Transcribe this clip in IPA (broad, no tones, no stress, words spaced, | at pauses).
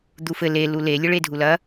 d̪ufɘ le lule lʲɘɭedʱulɐ